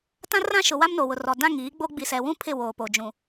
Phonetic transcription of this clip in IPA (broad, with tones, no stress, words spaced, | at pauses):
tã˦rã˦ʃʊ˨ wa˦mno˨wʊ˨rɔ˨ dã˦˨ŋiː˨˦ɡ͡bo˦ ɡ͡bi˨sɛ˨wũ˦ pʰɪ˦˨woː˨ po˨d͡ʒũ˨